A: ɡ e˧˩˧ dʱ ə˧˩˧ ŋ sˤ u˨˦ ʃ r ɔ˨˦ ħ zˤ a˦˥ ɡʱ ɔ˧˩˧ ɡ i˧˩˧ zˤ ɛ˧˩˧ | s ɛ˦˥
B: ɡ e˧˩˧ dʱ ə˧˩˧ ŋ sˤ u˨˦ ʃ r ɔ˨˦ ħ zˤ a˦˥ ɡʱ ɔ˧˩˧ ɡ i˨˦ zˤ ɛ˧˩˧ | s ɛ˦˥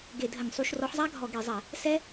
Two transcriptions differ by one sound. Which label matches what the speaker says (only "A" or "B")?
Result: A